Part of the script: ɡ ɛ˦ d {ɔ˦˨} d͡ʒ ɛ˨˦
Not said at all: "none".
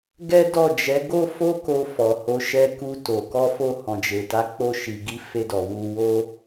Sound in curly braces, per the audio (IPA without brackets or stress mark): ɔ˦˨